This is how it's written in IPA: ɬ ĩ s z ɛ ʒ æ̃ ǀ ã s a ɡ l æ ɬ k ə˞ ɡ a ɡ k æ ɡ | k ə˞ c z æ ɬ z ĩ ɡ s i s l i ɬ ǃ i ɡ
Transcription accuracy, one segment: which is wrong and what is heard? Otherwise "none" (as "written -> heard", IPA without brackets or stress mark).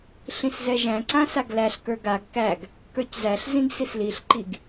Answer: none